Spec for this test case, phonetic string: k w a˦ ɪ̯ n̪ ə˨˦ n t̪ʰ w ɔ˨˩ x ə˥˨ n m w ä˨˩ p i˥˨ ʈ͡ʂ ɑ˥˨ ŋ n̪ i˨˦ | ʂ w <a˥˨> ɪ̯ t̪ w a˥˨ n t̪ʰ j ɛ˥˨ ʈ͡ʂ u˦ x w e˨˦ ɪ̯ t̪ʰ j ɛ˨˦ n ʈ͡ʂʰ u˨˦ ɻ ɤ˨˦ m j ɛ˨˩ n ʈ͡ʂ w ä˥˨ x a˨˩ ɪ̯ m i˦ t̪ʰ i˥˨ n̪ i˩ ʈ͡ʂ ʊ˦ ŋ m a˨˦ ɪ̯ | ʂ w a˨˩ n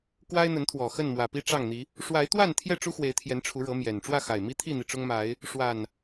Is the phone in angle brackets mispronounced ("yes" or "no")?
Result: yes